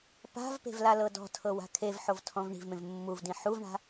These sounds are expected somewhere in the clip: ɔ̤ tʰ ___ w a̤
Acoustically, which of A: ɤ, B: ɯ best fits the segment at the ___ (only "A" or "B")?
A